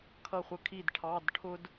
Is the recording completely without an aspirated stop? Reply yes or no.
no